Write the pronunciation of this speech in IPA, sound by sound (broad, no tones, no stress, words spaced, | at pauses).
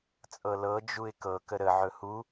t͡sʼɤlɤ d͡ʒuɪ̯kɤ kəɾə ʕɵhu